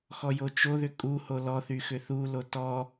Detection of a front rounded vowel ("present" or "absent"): present